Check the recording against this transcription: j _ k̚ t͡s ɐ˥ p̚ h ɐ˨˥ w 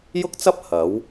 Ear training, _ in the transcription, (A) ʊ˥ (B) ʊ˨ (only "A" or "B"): A